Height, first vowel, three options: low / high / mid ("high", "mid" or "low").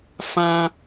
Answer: low